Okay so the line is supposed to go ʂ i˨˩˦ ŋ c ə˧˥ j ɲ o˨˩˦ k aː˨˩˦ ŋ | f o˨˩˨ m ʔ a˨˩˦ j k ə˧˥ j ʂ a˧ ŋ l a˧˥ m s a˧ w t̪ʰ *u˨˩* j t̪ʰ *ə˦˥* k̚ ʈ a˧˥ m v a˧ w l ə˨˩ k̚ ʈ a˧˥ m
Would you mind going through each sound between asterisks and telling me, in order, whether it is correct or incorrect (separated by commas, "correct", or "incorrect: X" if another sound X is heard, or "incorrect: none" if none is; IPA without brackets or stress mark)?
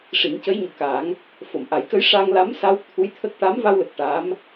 incorrect: u˧˥, correct